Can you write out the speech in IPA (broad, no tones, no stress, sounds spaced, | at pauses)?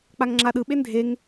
k͡p a ŋ ŋ͡ǁ a ɗ ɯ ɓ e n dʱ e ŋ